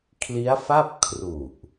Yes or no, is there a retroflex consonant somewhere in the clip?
no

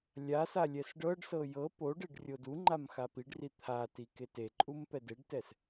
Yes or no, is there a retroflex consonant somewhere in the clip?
yes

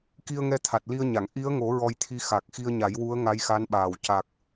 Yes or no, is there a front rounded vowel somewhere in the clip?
no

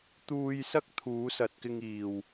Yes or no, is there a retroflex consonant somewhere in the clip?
no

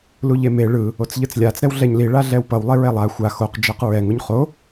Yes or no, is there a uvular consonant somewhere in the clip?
yes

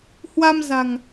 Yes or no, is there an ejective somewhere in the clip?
no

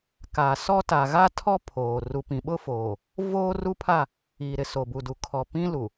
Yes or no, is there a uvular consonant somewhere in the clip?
no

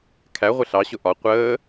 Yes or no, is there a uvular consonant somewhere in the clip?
yes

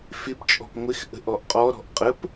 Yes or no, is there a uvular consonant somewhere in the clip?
yes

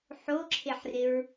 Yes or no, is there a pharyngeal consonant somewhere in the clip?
yes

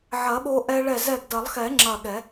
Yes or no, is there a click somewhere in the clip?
yes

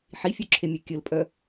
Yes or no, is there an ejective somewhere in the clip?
yes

